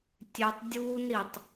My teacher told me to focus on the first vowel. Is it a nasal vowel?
no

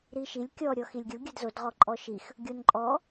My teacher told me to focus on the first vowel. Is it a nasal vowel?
no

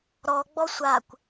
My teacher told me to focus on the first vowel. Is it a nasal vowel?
no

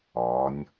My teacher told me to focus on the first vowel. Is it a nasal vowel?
no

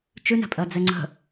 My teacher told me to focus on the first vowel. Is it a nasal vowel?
no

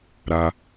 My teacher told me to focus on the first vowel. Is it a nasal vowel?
no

